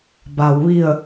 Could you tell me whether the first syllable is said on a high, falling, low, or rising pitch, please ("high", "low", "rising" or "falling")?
low